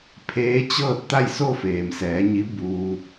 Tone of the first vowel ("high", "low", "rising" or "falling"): rising